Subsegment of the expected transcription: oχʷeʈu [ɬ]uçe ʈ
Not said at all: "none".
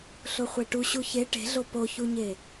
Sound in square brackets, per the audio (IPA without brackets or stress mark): ɕ